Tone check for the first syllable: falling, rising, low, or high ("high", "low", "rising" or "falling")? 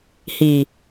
low